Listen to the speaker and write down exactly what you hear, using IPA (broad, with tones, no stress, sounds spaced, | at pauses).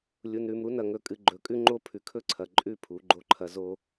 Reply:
lʲ u˨ n ɾ ʉ˨ m ɾ u˦ n ɐ˨ ŋ ɵ˨ kʼ ɨ˨ ɡ͡ǃ ɵ˨ kʼ ʉ˦ ŋ͡ǃ o˦ pʰ ʉ˨ kʰ ɵ˦ ǀʰ ɐ˨ ǃʼ ʉ˦˨ pʰ u˨˦ ɡ͡ǃ o˦ ǃʰ ɐ˦ z o˦